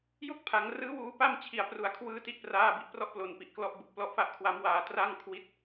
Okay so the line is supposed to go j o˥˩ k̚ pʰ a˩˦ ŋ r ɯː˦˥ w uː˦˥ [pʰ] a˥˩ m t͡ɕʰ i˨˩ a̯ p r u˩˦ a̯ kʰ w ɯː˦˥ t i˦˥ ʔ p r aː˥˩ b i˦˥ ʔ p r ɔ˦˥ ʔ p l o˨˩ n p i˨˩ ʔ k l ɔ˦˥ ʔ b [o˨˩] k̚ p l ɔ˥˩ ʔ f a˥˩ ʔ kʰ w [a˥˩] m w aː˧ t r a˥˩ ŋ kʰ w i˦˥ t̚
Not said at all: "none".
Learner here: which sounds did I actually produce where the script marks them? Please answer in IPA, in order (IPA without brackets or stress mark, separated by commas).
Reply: p, u˨˩, a˦˥